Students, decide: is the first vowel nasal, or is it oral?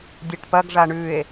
oral